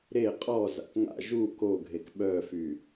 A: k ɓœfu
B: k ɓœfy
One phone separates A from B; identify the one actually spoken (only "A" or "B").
B